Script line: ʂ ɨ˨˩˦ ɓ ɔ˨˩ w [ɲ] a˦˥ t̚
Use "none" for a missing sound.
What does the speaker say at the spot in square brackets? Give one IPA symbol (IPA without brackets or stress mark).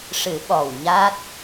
ɲ